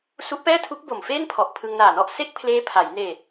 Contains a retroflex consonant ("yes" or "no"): no